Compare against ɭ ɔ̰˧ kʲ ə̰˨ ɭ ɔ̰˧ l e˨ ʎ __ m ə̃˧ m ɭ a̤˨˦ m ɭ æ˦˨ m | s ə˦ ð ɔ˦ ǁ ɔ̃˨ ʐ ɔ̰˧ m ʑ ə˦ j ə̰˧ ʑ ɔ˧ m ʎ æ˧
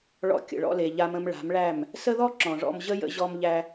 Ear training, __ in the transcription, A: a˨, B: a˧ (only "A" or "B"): B